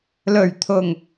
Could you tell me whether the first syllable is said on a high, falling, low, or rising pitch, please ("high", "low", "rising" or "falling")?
low